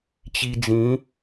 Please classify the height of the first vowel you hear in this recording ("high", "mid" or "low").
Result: high